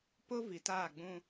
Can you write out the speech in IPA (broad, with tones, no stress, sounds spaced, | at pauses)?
p ʊ˦ v i˨ t aː˦˨ ɡ͡b ũ˦